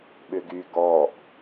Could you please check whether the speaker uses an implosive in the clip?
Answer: yes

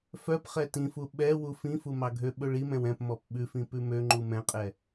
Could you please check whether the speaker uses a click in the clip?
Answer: yes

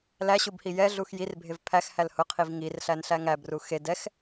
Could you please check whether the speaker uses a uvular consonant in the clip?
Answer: yes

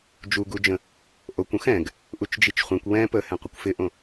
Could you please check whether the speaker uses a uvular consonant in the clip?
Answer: yes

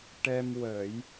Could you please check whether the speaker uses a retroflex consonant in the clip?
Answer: yes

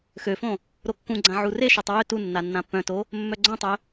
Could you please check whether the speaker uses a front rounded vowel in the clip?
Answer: yes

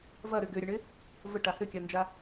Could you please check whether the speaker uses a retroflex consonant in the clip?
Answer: yes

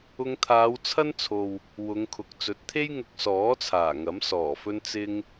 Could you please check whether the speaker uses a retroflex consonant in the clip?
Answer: no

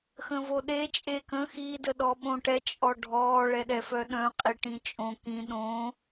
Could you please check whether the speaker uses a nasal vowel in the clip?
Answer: yes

